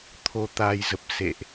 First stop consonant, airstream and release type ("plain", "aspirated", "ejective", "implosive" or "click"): aspirated